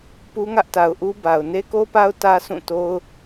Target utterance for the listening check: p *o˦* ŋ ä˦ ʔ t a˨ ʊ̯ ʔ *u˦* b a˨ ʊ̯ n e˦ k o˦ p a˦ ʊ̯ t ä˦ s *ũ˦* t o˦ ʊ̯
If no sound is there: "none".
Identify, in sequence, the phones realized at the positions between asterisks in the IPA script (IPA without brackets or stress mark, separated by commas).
u˦, u˦, ũ˦˨